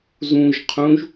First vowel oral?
no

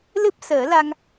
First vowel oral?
yes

